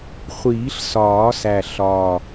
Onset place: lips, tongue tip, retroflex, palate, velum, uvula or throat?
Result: uvula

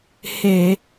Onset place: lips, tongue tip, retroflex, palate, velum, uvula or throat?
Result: throat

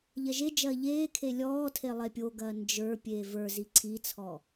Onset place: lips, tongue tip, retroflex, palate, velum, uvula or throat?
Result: palate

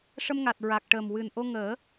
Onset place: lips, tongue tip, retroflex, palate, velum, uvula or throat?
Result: retroflex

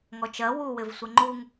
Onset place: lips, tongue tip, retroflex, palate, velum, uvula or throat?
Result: velum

